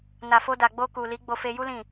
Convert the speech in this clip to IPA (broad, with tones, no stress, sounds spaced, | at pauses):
n a˨ f o˧ d a˨ ɡ͡b o˧ k u˨ l i˨˦ ɡ͡b o˧ f e˧ j u˦ l ĩ˦˨